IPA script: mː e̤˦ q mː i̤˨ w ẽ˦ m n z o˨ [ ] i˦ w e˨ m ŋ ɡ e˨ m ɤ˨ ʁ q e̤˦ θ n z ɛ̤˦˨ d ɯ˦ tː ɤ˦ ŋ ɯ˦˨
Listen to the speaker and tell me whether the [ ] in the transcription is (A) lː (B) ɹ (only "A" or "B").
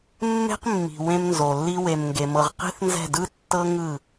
A